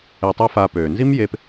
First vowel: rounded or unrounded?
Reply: unrounded